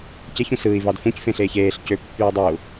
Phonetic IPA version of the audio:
c e ç ũ s ɯː i̯ v ɑ d f ũ c f ẽ ɬ eː ç eː ɬ c ø pː yː dˤ ø u̯

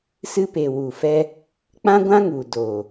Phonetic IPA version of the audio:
s ɨ˧ p e˨ w u˨ f ɛ˧ | k͡p ã˦ ɡʷ ã˦ ŋ u˨ d o˨

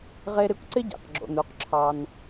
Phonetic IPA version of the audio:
ʁ e˧ ɾ ɪ˧ kʷ ǀ ɪ˦ ɟ ḛ˨ q ɡ͡ǁ o̰˨ n u˨ q ǁʰ ɑ˧ n

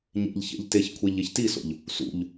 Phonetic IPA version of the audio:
ɲ ḛ ʎ ç ḛ ʎ t e ç kʷʰ e ʎ e ç t i s o̰ ʎ | s ṵ ʎ

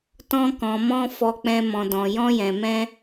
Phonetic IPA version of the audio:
t ɔ̃˧ k ɔ̃˨ m ɔ̃˧ f ɔ˨ k͡p ɛ̃˨ m ɔ̃˨ d ɔ̃˨ j ɔ̃˧ j ɛ̃˨ m ɛ̃˧

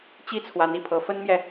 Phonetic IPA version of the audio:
t͡ɕ i˥ t͡sʰ w a˧˥ n i˨˩ pʰ ɤ˧˥ f ə˥ n m j ɛ˨

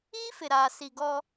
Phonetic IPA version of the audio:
iː˦ f ɪ˨ ɾ aː˨ s i˨ ɡ ɔ˦

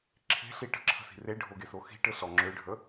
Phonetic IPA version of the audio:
ǁʰ e̤ ɬ i ʈ ə̤ ǁʰ ə̤ s i̤ r e ɖʱ o ɡ e s o x i̤ ʈ ɘ ɬ ɔ ŋ͡ǁ ø ɖʱ ə

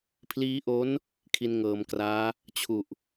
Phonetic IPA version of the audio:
pʰ l iː˦˥ ʔ o˦˥ n | kʰ i˧ n ŋ ɤː˩˦ m k r aː˦˥ | t͡ɕʰ u˨˩ ʔ

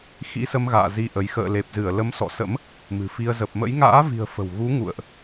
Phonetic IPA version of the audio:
x ḭ˧˥ s ə˧ m ɣ a̰ː˧˨ z i˧ ʔ ə˨˦ j x ə̰ː˧˨ l e˨˩ p̚ z ɨ˧˩ ə̯ l ə˨˦ m s ɔ̰˧˨ s ə̰˧˥ m | m ɨ̤˨˩ f i˧ ə̯ z ə˨˩ p̚ m ə̰˧˥ j ŋ a̰ː˧˥ v i̤˨˩ ə̯ f ə̤˨˩ w ɣ u˨˦ ŋ ṵ˧˨ ə̯ ʔ

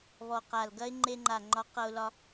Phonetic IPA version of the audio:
β ɔ˨˩ q a˨˩ l ɡ ɐ˦˥ ɪ̯ ŋ͡ǃ e˧ ŋ͡ǃ a˨˩ ŋ͡ǃ ɒ˨˥ q ʌ˧ ʊ̯ l ɒ˧

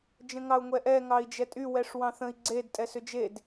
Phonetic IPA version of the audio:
d͡ʒ ə̃ ŋ ɑ u̯ ŋʷ ɛ ʔ ɛ ŋ ɑ i̯ d͡ʒ ɛ tʼ y w ɛ ʂ w ɑ̃ θ ə̃ i̯ ɡ͡ǀ e d tʼ ɛ s ʏ d͡ʒ e d

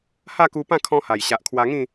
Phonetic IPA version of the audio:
h a˥˧ k u˧ p ã˥˧ kʰ ɔ̃˦ h a˨˩ j ɕ a˨ ʔ kʰ w a˧ ŋ ĩ˥˧

